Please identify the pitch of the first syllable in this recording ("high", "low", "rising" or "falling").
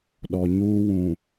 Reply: low